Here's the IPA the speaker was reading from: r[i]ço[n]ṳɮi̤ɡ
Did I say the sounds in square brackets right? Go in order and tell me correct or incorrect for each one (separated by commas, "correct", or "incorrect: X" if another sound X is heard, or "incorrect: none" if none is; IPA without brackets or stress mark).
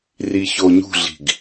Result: correct, incorrect: ɲ